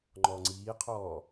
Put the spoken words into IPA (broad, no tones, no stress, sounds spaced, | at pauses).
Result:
ŋ͡ǃ ɔː ŋ͡ǀ iː qʰ ɔː